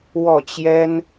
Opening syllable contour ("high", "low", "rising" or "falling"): falling